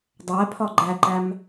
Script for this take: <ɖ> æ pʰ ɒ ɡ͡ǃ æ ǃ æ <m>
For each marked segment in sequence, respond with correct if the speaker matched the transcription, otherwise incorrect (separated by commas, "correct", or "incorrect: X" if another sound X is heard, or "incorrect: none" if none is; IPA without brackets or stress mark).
incorrect: dˤ, correct